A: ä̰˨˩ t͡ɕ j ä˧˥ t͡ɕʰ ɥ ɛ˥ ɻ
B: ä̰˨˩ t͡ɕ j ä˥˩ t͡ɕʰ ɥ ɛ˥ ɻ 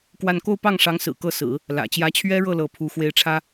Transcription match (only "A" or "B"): A